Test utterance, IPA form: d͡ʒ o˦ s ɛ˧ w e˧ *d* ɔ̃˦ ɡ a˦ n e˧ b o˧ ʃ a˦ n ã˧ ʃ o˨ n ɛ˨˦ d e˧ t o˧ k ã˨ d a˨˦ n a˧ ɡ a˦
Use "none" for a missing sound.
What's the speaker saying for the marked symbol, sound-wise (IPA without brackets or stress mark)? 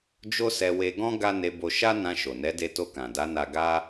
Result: ɡ